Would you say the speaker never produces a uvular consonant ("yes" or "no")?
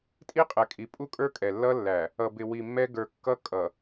no